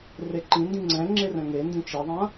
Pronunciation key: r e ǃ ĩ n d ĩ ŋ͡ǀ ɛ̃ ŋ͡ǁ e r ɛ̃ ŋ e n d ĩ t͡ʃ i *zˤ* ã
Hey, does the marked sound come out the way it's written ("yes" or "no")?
no